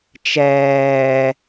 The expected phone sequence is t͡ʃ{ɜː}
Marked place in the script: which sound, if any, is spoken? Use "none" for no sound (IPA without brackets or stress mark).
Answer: ɛː